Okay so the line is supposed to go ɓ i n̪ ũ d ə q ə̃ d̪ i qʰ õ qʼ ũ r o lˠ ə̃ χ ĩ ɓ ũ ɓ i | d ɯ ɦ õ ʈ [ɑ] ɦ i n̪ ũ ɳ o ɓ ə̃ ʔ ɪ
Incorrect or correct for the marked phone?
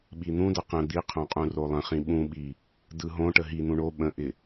incorrect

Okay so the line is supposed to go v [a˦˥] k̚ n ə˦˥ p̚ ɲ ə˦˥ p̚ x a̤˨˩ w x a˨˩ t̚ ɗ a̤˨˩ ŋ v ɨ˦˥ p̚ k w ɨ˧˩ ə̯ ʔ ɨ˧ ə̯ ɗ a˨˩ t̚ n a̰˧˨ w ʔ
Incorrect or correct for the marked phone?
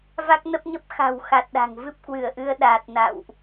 correct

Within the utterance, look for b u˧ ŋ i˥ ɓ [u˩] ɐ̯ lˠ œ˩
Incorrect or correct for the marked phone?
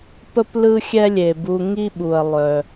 correct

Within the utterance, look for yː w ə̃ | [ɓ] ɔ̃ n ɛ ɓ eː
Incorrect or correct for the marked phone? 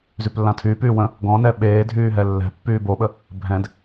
incorrect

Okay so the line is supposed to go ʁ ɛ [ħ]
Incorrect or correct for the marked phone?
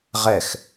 incorrect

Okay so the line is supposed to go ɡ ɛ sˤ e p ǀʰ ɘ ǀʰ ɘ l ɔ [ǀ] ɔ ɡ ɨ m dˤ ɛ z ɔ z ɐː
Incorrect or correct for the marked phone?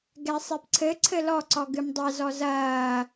correct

